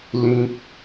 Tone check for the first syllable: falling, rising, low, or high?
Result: high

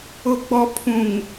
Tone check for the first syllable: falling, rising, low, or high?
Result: low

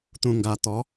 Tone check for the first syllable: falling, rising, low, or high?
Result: low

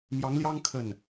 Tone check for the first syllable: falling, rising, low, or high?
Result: rising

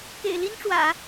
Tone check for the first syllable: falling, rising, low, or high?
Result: low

